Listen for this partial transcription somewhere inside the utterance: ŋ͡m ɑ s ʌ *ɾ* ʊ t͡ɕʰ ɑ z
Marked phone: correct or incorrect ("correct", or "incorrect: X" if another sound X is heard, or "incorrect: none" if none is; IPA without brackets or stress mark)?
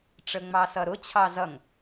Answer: correct